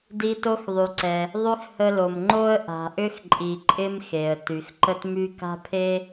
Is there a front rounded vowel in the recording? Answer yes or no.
yes